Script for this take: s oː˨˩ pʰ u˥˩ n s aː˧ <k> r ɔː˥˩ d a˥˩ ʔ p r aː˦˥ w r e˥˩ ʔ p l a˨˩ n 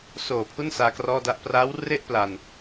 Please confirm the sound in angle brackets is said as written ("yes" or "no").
yes